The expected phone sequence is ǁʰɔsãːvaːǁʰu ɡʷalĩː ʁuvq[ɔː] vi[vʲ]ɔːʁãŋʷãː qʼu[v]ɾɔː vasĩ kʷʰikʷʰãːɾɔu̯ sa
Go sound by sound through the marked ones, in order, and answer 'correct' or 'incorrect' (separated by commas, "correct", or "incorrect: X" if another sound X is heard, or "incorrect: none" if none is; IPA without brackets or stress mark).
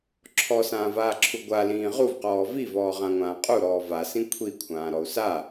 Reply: correct, incorrect: v, incorrect: none